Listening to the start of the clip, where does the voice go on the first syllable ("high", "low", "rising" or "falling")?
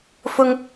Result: high